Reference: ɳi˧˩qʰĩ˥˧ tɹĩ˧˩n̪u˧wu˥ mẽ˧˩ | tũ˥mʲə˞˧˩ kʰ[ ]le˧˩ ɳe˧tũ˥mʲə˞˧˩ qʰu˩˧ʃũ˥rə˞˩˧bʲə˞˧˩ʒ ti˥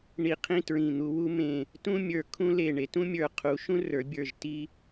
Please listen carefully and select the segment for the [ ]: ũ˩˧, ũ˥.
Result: ũ˥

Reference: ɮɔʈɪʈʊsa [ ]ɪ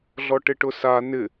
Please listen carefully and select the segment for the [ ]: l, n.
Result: n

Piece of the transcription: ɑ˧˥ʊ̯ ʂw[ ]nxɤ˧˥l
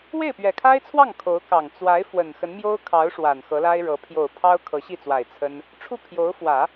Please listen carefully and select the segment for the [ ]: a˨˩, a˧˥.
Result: a˨˩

